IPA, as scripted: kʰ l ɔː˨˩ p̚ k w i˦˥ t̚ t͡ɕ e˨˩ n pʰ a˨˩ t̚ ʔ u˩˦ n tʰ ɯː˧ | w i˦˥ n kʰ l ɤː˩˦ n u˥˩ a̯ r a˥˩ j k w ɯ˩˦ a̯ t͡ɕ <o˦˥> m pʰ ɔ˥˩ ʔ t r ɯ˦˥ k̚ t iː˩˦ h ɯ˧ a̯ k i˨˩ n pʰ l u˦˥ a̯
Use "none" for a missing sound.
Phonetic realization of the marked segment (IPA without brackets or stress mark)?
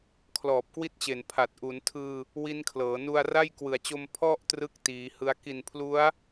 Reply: o˧